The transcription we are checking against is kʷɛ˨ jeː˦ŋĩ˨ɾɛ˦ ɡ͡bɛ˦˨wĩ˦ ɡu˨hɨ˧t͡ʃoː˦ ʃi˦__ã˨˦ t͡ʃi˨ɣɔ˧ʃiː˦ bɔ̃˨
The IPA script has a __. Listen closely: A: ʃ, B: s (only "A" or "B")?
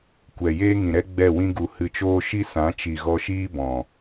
B